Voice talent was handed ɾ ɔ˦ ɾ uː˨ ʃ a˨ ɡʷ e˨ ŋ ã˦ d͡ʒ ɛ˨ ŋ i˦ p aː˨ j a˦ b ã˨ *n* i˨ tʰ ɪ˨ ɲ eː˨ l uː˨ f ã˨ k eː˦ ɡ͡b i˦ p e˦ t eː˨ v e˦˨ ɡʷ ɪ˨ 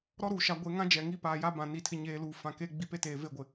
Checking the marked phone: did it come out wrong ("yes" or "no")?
no